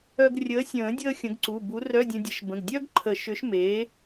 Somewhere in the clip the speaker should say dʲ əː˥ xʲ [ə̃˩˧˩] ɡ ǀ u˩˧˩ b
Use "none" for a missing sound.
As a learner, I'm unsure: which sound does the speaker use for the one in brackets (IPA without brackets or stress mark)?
ə̃˨˥